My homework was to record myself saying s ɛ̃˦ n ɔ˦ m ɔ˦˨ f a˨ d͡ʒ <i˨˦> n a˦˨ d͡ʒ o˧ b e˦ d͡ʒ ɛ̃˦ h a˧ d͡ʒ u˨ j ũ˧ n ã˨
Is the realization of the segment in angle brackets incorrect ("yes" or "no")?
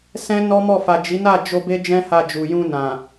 no